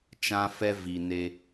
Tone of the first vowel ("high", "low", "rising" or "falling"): high